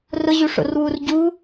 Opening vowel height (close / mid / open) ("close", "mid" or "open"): close